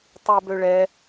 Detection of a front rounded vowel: present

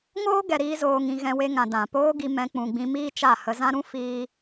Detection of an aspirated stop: absent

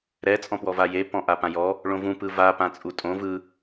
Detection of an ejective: present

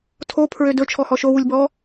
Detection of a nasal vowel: absent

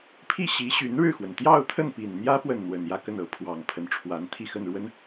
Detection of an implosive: absent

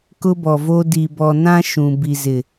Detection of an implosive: absent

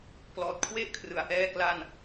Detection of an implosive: absent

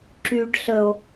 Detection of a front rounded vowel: present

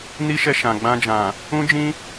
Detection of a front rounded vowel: absent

